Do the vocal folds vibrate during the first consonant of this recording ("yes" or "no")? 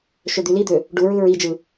no